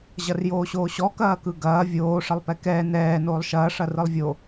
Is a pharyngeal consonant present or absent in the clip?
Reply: absent